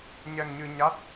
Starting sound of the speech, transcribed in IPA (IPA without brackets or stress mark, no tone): ɲ